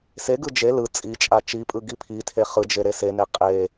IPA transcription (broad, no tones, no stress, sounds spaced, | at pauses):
s e ɡ ɯ d͡ʒ e l ɯ t͡sʼ i t͡ʃʼ a t͡ʃ i pʼ ɯ ɡ i pʰ i tʰ e χ ɯ d͡ʒ e ɾ e s e n e qʼ e